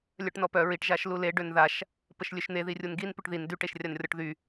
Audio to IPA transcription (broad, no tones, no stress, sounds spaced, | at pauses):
lʲ œ ʈ n ɔ p œ ɹ i ʈ ʒ a ʃ l u l e ɖ ø n ð a ʃ | p ə ʃ lʲ ø ʃ n̪ e ð i rʲ u n ɡ i n p y ʈ ð i n d y ʈ e ʃ rʲ a n rʲ ɔ ʈ ð y